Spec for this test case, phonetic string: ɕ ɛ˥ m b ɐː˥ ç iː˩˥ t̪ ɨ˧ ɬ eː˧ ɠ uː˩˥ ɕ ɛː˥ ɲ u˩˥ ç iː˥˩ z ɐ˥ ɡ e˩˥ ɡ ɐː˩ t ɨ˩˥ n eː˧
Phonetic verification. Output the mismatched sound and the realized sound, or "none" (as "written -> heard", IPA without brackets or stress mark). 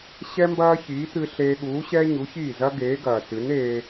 e˩˥ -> eː˩˥